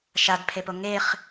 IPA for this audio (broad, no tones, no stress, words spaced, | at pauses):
ʃadpʰepo ŋeχ